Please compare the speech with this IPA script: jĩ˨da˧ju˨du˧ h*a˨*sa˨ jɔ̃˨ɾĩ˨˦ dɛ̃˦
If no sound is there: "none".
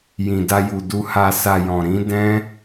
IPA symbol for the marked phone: a˨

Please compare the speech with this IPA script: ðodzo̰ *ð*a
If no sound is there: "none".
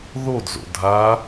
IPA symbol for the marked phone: dʱ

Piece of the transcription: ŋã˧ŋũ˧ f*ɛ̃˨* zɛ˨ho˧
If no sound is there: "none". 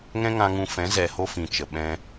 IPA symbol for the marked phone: ɛ̃˨˦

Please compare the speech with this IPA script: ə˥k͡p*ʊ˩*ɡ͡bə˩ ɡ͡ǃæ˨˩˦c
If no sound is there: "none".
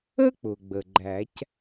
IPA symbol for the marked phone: ʊ˩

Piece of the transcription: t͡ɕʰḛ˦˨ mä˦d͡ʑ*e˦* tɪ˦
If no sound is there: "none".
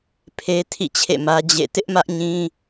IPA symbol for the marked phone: ḛ˦˨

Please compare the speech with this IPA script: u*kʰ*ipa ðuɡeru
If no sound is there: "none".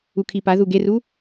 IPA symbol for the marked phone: kʰ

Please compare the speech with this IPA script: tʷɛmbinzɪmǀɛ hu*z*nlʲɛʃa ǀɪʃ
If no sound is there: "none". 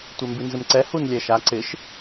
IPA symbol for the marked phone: none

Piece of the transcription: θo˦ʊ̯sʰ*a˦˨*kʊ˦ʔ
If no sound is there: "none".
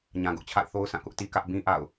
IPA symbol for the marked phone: ã˦˨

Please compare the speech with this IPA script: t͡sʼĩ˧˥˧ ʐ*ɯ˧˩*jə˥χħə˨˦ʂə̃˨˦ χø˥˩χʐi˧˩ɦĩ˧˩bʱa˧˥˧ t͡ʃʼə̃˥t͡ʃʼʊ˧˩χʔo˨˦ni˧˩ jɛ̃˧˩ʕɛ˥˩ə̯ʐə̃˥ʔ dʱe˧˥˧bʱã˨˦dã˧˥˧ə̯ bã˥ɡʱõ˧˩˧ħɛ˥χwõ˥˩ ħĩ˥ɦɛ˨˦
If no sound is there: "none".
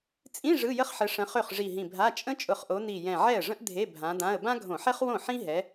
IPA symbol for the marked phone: ɯ˧˥˧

